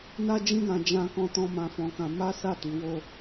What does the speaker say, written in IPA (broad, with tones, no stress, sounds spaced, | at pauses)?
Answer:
n a˦ d͡ʒ ĩ˦ ɡ ã˧ d͡ʒ ã˦ k ɔ̃˦ t ɔ̃˦ m ã˧ f ɔ̃˧ k ã˧ m a˦ s a˦˨ t i˨˦ w o˦